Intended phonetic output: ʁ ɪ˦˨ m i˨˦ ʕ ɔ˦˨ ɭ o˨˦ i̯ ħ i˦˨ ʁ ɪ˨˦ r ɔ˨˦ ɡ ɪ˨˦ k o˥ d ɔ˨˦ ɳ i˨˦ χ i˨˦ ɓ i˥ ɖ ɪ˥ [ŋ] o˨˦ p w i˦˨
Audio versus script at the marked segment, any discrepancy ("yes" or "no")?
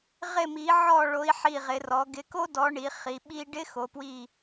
yes